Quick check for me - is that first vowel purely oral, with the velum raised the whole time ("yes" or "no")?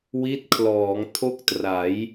yes